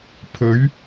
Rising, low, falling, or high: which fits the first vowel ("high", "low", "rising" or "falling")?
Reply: rising